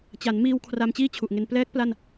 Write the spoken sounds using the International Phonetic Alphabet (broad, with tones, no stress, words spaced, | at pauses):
t͡ɕa˩˦nmiː˧w kʰra˧mt͡ɕiː˥˩t͡ɕʰu˨˩ʔŋe˧n plɛː˦˥k̚ pla˥˩n